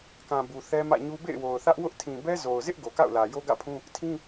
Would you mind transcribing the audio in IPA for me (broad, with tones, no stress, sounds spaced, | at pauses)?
k ã˨ b u˨ θ ɛ˦ m ä̰˦˨ ɲ u˦ b ḛ˦˨ ɪ̯ w o˨ ʊ̯ θ ä˦ ʔ w ʊ˦ ʔ tʰ ĩ˨ b ɛ˦ z o˨ ʊ̯ z ɪ˦ ʔ ɡ o˨ k a̰˦˨ ʊ̯ l ä˨ j o˦ ɡ ä̰˦˨ pʰ ũ˦ | tʰ ĩ˦